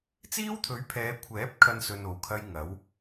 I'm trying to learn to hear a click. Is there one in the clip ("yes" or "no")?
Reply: no